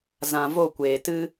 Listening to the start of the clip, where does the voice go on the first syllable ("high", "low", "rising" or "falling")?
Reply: low